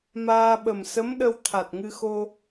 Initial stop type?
implosive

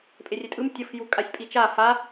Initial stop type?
ejective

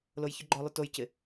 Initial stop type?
click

